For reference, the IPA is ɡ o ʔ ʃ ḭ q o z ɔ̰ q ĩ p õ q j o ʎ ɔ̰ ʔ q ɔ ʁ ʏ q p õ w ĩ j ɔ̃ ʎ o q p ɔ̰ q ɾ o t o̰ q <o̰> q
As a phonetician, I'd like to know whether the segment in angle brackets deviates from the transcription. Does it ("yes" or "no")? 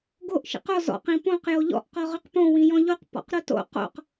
no